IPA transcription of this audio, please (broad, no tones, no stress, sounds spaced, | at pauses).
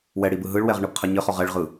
w ɛ ɽ i b ɯ ɦ ɯ ɭ w ɛ ʁ ɳ ɯ b qʰ ɜ ɲ ɘ χ ɔ ʁ ɛ ɭ ʁ ɯ